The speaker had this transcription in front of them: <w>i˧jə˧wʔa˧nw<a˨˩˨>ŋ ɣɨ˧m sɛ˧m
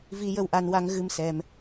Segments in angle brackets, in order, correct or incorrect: incorrect: v, incorrect: a˧

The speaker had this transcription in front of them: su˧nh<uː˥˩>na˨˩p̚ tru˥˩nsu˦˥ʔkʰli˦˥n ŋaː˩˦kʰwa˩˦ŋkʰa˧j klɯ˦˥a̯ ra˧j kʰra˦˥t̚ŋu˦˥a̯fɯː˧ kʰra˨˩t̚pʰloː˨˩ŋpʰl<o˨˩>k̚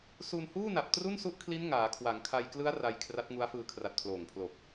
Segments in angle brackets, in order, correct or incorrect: correct, correct

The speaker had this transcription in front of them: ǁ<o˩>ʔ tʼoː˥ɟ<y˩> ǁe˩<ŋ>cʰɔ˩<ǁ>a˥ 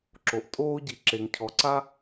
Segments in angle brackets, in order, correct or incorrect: correct, incorrect: i˩, correct, incorrect: ǀ

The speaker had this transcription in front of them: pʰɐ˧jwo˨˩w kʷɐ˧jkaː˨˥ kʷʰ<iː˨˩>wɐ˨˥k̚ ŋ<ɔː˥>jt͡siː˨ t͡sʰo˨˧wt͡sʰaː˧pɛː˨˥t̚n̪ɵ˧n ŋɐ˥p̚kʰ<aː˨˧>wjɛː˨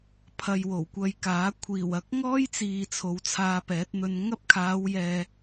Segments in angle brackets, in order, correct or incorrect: correct, correct, correct

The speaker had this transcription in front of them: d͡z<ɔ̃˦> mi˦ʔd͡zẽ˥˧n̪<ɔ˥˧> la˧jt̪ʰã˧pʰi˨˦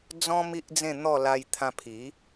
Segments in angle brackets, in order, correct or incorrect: correct, correct

